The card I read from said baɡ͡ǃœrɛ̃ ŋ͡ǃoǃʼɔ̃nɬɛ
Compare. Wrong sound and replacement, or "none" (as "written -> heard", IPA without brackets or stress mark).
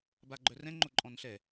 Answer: none